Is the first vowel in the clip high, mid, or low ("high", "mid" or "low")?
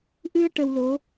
high